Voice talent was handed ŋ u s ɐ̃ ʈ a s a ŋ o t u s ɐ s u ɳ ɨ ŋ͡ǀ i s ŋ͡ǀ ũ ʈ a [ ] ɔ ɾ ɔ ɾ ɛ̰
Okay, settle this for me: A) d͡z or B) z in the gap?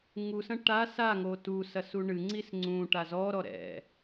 B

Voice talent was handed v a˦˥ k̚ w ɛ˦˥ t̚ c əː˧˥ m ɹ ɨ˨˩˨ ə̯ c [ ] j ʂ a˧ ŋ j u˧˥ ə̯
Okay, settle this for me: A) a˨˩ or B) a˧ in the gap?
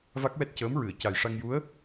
A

